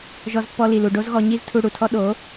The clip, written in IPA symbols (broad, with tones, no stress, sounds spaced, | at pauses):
ʒ ɔ˧ z pː ɔ˧ l i˨ l u˨ ɖ o˦ z ɣ ɔ˧ ɲ i˦ z tʰ u˧ ɽ u˨ tʰ ɔ˦ ɗ o˨˦